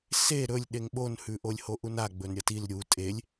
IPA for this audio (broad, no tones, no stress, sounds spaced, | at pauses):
s e ɾ ɵ lʲ ɗ e ŋ ɓ o n h ʉ ʔ o lʲ h o ʔ u n a ɡ͡b ɵ n ɾʲ ɐ t i l ɾʲ u tʼ e lʲ